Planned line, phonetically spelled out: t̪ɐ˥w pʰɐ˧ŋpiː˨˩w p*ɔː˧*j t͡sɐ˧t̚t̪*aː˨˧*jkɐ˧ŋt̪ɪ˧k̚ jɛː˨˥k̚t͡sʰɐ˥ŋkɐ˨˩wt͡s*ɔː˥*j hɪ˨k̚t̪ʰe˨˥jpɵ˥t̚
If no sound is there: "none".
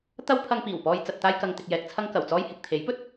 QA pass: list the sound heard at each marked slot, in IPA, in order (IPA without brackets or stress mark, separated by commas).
ɔː˧, aː˥, ɔː˥